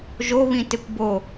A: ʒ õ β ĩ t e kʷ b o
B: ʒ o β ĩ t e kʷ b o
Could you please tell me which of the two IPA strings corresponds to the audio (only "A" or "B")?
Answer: B